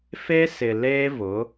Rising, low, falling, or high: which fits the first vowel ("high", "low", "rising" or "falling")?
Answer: high